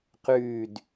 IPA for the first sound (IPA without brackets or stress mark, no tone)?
q